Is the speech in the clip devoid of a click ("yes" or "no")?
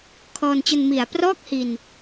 yes